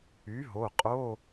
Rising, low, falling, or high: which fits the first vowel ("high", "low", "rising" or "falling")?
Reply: rising